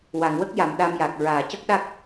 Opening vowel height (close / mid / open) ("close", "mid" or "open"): open